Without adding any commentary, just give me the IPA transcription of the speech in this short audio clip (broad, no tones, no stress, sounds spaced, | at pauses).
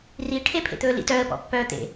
r i ʈʰ e pʰ ḛ t̪ ɵː l ḭ t œ ə̯ p ɔ̰ pː œː t̪ ḛ